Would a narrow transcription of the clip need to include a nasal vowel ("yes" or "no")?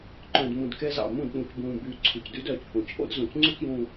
yes